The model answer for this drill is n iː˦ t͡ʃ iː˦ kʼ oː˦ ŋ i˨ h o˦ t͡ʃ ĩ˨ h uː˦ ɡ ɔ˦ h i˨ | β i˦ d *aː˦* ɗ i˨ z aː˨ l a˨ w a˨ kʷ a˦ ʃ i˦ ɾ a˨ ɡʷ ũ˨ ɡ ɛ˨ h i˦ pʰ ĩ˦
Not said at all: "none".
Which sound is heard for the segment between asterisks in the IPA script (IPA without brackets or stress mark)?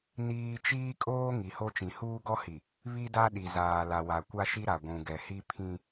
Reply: a˦